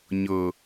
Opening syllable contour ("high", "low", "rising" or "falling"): low